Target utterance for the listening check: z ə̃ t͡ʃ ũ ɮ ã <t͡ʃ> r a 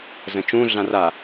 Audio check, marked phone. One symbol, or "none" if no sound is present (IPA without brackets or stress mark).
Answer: none